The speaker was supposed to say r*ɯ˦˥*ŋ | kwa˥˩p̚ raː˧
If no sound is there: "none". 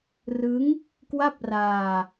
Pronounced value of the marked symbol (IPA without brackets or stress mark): ɯ˦˥